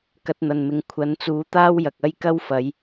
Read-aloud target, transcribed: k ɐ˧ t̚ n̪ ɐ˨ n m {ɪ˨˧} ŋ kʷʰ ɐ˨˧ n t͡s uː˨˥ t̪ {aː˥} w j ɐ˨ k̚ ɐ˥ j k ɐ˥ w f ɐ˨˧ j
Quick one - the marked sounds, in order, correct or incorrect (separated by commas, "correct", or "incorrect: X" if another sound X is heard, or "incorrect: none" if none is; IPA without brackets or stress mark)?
incorrect: ɪ˨, correct